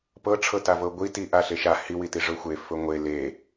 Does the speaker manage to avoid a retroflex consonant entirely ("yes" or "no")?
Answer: no